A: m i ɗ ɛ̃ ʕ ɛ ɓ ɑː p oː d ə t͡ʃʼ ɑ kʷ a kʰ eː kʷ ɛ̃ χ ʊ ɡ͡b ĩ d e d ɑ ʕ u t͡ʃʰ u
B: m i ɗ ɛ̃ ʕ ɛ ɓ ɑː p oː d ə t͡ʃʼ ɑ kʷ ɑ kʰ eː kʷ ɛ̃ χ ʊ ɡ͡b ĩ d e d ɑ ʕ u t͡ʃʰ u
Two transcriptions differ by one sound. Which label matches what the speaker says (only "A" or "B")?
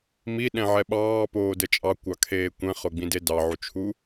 B